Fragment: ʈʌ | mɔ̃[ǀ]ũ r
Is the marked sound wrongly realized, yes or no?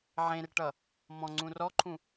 yes